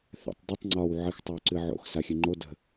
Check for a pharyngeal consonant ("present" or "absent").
present